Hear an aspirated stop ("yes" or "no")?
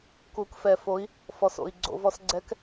no